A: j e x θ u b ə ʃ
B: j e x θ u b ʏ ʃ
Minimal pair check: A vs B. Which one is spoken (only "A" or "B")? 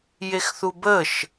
A